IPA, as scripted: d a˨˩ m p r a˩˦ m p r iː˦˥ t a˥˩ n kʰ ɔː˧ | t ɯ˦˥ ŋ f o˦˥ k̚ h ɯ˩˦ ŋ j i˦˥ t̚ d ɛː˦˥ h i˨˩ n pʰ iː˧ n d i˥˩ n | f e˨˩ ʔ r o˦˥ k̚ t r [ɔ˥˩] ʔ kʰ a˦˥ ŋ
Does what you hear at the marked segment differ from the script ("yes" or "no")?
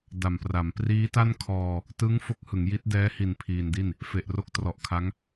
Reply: yes